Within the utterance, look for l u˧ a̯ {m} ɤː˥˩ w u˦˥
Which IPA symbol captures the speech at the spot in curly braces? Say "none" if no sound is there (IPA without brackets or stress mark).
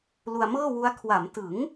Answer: m